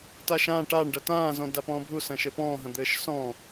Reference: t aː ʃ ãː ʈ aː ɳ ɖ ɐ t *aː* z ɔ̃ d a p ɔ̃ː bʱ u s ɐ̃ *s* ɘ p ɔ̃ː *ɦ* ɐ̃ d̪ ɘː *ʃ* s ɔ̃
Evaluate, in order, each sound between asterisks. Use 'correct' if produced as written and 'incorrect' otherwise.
incorrect: ãː, incorrect: ʃ, correct, correct

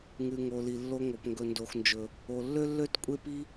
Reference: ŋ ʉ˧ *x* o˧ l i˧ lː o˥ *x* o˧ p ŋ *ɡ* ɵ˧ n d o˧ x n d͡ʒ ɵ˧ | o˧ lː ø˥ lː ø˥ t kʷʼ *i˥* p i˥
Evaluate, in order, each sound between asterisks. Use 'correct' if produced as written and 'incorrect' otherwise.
incorrect: ŋ, incorrect: ŋ, correct, incorrect: e˥

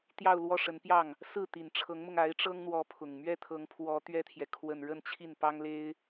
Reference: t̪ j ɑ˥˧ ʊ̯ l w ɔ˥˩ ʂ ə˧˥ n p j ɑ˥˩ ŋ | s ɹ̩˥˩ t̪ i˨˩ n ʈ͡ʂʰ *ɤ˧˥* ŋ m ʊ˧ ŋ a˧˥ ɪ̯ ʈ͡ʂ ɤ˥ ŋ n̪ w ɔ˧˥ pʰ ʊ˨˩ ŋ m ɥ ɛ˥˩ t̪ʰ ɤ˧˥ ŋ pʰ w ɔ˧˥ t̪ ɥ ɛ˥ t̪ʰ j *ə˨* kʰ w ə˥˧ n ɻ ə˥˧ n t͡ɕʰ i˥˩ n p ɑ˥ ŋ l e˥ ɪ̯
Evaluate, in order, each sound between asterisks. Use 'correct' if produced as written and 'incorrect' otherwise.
correct, incorrect: ɛ˨

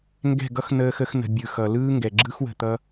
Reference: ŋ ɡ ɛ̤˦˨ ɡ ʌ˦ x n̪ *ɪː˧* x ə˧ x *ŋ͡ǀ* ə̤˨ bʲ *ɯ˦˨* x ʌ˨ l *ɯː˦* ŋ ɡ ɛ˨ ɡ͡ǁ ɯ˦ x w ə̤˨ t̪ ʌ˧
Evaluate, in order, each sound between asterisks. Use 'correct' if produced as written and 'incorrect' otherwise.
incorrect: əː˧, incorrect: n̪, incorrect: ɯ˨, correct

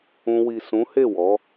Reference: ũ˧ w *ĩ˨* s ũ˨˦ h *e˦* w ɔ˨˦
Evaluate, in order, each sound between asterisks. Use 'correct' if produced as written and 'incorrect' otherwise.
incorrect: i˨, incorrect: e˦˨

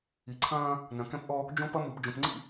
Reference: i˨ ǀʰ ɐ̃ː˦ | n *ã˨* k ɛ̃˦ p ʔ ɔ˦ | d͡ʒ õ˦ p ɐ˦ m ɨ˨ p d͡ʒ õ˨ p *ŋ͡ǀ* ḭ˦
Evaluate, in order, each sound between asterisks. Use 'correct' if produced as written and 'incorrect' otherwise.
incorrect: ɐ̃˨, correct

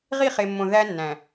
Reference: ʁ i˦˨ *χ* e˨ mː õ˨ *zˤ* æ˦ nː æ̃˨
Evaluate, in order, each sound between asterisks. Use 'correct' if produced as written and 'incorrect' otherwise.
correct, incorrect: ð

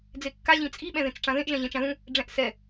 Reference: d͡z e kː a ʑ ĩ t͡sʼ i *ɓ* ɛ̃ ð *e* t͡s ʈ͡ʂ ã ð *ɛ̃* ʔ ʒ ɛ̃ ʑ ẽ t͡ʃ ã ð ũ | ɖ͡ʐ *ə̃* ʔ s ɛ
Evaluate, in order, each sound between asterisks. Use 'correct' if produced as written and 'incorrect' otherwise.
correct, incorrect: ẽ, incorrect: ẽ, incorrect: ɛ̃

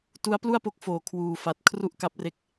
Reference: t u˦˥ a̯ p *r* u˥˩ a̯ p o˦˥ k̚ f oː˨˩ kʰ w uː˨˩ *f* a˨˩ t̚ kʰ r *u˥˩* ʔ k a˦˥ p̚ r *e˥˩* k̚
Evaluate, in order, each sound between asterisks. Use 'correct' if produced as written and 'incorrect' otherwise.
incorrect: l, correct, correct, incorrect: e˦˥

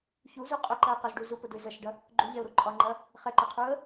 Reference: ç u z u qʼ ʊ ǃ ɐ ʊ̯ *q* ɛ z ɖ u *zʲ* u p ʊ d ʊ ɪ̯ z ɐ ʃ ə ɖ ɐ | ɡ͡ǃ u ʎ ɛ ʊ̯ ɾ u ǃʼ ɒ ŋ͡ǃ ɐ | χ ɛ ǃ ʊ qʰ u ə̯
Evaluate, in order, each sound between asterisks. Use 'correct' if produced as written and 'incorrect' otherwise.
correct, incorrect: z

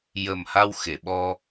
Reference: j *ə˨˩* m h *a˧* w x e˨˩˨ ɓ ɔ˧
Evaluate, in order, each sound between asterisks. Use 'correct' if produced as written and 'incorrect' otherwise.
correct, correct

